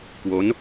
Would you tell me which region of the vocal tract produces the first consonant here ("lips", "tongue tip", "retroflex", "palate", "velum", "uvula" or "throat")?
velum